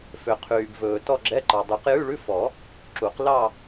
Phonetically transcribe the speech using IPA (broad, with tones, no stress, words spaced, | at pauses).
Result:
fø˨ qʰyː˨bvɵː˨ tɔ˥˧ɡ͡ǁɛ˧˥˧ǃɑ˨ dˤy˨˩˦qjʉ˧˥˧ɭʉ˧˥˧ fɔ˨˩˦ | ǁu˨˩˦qlɑ˥˧